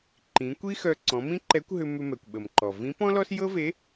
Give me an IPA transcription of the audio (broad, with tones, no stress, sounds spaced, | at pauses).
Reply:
ǃ ĩ˩˧ kʷ i˥ x œ˧ ǀ ɔ̃˩˧ m ĩ˥ ǃ ɛ˧˥ kʷ ɦ ʏ˧ m ʏ˧ m ɛ˩ kʷ ɓ ə˩ m ǃ ɔ˩ v ĩ˧˥ p ɔ̃˥ l ɔ˥ s j ɤ˥ v e˧˥